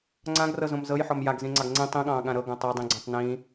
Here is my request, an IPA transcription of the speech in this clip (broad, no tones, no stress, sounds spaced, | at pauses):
ŋ͡ǀ ã ɡ r ɤ z õ m z ɤ j ħ ɔ m j a ɡ z ĩ ŋ͡ǀ ɑ ɡ ŋ͡ǀ ĩ tˤ ĩ ɠ ɑ̃ː ɠ ã ɾ ɤ ɡ õ tˤ o dˤ ĩ ɡ͡ǀ ɔ̃ tˤ n ĩ